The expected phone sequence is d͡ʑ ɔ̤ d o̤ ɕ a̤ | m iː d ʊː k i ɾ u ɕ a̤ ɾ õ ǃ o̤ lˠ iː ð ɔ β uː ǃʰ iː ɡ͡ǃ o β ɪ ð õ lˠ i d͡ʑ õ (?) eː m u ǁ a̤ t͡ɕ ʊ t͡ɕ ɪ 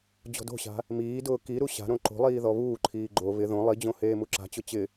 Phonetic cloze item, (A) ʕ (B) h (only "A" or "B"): B